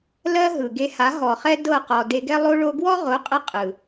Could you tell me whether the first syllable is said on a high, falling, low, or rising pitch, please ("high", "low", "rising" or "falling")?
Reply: high